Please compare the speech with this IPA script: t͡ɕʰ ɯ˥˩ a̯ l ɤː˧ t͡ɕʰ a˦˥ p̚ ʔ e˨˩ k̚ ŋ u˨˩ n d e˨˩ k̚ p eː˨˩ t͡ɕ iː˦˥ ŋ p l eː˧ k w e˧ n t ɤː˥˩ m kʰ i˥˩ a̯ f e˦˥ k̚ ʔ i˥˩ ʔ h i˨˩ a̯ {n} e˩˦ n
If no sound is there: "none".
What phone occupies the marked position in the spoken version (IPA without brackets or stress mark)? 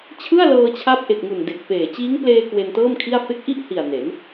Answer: n